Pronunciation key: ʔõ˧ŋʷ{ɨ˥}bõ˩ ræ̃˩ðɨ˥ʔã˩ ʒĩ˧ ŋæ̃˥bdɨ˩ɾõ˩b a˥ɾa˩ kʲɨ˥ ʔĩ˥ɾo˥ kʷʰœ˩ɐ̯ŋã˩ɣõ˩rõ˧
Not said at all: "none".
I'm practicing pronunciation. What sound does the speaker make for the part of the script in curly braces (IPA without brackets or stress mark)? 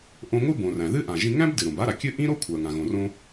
ɨ˥